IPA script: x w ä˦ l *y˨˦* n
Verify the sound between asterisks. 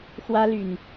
incorrect: y˨˩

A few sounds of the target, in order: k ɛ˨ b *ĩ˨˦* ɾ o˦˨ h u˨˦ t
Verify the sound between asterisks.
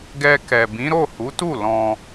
correct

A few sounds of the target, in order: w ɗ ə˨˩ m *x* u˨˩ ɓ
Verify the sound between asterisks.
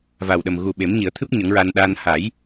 incorrect: ɣ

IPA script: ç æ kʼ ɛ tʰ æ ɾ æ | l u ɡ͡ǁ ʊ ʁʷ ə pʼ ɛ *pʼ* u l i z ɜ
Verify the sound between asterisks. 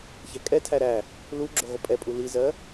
correct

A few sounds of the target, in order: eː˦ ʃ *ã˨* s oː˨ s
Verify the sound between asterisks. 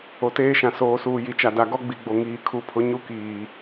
correct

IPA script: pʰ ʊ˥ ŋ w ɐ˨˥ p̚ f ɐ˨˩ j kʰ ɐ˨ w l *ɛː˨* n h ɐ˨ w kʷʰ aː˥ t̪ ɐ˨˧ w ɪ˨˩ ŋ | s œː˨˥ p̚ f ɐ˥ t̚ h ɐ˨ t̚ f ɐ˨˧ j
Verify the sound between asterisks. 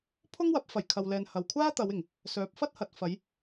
correct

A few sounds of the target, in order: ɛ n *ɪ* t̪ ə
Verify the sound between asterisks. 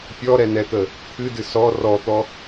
incorrect: ɛ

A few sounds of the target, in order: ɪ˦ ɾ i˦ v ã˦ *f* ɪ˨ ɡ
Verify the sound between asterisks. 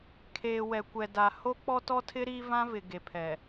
incorrect: v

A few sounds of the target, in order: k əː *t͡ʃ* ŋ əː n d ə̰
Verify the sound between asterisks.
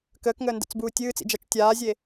incorrect: k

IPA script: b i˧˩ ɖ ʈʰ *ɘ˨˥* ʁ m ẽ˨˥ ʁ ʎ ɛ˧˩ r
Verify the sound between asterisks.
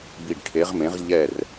incorrect: e˨˥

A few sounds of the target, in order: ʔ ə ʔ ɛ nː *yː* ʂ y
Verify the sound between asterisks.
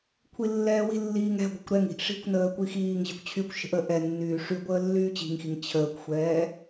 correct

